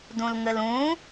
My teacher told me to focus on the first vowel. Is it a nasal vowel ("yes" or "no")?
yes